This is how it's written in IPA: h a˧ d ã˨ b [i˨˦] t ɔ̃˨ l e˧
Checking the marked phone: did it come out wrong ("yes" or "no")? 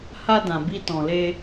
yes